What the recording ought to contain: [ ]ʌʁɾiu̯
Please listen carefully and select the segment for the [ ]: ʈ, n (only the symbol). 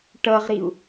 ʈ